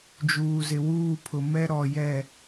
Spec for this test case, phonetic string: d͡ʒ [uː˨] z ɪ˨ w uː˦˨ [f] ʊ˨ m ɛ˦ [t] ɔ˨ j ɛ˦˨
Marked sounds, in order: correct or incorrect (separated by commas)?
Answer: correct, incorrect, incorrect